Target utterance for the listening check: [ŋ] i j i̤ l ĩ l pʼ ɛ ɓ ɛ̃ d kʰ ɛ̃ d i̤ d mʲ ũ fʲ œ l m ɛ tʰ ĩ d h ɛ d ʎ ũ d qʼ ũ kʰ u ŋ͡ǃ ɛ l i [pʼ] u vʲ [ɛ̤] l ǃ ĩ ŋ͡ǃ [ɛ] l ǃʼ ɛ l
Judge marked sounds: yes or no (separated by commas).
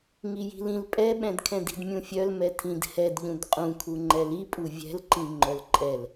yes, yes, yes, no